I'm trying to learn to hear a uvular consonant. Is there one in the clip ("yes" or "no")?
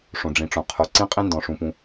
yes